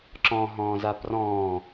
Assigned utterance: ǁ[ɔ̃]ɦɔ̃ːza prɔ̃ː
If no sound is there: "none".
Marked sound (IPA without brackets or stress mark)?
ɔ̃